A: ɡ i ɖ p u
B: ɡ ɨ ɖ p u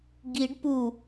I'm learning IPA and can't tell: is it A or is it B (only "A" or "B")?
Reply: A